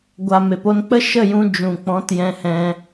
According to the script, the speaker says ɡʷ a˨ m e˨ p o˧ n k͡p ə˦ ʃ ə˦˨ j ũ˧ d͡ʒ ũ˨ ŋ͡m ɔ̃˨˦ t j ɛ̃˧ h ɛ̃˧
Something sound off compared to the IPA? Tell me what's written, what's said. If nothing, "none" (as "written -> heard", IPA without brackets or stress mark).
ŋ͡m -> k͡p